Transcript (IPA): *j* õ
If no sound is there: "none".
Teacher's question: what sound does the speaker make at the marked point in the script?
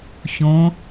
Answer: ç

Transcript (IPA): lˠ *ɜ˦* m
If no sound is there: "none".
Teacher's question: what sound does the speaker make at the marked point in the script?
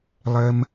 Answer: ɜ˦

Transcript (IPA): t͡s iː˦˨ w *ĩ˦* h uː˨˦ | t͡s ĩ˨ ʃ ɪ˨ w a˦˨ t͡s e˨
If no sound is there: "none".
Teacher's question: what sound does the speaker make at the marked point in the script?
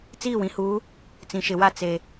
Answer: ĩ˨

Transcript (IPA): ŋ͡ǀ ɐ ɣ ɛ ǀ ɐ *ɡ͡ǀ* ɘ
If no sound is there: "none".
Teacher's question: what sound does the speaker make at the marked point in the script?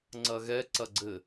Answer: ɡ͡ǀ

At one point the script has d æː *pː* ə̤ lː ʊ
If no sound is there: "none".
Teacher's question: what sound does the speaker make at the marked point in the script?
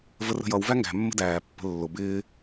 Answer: pː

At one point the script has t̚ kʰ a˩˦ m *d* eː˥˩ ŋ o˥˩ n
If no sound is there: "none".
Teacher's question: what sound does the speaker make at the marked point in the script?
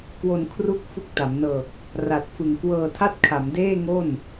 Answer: d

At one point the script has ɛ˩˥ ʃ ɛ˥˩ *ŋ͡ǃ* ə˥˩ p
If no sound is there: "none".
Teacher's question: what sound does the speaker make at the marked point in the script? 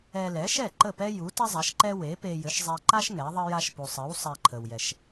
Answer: ǃ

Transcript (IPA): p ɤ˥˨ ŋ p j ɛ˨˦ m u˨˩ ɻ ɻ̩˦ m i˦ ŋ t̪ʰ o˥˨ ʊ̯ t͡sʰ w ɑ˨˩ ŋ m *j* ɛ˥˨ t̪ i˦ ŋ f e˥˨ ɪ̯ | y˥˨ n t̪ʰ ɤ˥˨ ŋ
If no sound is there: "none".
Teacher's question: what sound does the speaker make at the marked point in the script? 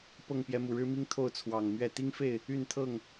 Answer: ɥ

